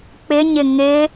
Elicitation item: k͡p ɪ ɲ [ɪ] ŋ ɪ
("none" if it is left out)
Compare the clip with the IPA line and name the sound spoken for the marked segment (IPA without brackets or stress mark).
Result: ɪ